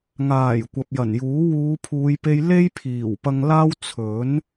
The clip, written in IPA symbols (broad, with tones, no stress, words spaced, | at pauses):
ŋaː˨˩j kʷɐ˨p̚jɐ˨˩njuː˨˥ wuː˨˧pʰuː˨˧jpe˧jle˥j pʰiː˨˩wpɐ˧ŋlaː˥w t͡sʰɵ˨˥n